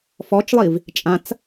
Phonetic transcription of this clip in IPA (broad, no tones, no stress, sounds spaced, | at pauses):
f ɔ t͡ʃ lˠ i v | t͡ʃʼ ã t͡s